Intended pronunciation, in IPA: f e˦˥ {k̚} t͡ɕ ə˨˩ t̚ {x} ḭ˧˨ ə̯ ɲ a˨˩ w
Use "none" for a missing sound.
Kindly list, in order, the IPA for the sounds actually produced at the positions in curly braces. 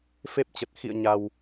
p̚, x

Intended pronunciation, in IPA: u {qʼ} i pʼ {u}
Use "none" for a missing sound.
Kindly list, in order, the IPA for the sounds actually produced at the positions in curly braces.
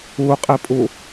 qʼ, u

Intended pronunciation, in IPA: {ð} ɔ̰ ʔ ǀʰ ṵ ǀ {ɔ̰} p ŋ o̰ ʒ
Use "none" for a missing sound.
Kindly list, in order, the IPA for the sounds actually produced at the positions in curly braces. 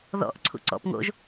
ð, ɔ̰

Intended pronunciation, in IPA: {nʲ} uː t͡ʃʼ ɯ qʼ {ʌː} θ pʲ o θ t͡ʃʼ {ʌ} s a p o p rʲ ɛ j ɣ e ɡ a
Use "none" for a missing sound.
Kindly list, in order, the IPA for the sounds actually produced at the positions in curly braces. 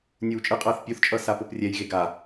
nʲ, ʌː, ʌ

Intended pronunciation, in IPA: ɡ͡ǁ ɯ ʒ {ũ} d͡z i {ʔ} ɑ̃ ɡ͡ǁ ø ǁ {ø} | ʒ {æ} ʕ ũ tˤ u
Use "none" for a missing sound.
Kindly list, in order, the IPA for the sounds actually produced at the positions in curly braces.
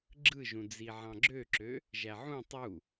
ũ, ʕ, ø, æ

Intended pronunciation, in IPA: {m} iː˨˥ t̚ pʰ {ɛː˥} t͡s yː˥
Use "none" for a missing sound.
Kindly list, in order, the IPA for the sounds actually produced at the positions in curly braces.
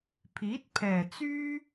pʰ, ɛː˨˩

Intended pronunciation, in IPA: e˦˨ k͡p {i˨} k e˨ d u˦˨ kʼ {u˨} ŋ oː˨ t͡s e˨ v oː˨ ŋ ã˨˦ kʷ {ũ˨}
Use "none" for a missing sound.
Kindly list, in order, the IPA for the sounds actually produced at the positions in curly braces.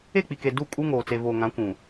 i˨, u˦, ũ˨

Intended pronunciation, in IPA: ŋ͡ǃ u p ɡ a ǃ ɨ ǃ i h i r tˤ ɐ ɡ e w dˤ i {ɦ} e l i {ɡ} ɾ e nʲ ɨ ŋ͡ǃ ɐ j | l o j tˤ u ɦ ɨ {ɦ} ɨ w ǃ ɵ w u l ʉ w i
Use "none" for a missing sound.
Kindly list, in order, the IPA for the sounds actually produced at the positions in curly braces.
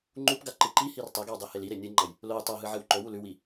h, none, ʕ

